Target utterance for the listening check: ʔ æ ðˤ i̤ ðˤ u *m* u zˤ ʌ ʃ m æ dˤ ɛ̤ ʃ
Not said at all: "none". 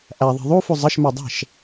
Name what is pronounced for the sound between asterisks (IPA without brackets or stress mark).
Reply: f